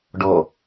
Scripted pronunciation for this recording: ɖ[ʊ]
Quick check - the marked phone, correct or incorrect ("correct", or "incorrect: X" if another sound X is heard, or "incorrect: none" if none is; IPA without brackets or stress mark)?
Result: incorrect: ɔ